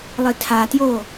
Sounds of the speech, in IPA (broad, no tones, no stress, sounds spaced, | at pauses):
lˠ i tʰ a t j oː